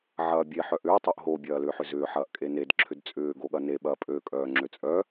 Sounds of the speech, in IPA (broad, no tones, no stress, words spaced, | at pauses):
ʕɐːbʲe ħœʔʏː tˤoʔɦo bʲɐːlʏːħʏzʏː ħɐːʔkʼened ǁʰʏdt͡sʼʏː ɡoɠɐne ɓɐːpʼø kʼœːŋ͡ǁøt͡sʼœ